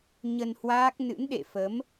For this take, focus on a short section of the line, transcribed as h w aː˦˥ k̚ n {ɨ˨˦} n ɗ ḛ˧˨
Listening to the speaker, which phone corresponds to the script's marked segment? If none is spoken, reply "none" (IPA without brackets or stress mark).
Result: ɨ̰˧˥